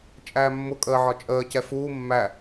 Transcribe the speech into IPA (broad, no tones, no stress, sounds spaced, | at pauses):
t͡ʃʼ æː mː ʊ kʼ əː ʕ ɒ t͡ʃʼ əː c ɛ f uː mː æ